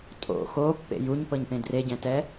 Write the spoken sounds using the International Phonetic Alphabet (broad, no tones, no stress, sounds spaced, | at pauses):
tʼ o̰ x o pː ḛ j u ɲ p ɤ ɲ p ẽ d r e ɟ ɛ̃ t ɛ